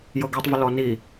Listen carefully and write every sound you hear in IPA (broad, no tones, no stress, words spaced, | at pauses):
jɤɡetˤvə lɔni